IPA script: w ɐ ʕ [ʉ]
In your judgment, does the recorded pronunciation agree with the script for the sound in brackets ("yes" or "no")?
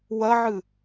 no